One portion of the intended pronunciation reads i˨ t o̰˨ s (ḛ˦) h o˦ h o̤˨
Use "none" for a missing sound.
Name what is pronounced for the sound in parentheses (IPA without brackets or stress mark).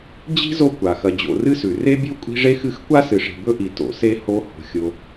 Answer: e˦